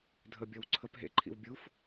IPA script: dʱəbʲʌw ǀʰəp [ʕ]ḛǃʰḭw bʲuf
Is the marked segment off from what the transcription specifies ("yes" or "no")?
yes